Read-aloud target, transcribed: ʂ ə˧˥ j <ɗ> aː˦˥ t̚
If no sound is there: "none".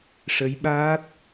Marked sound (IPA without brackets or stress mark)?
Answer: ɓ